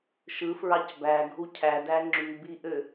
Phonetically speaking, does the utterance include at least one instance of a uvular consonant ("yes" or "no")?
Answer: no